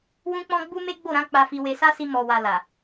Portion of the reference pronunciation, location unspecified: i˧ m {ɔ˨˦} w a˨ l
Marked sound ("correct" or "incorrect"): incorrect